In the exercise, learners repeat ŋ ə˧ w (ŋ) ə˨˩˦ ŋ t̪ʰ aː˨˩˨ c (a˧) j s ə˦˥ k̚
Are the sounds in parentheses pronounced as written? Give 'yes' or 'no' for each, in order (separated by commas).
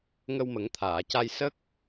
no, yes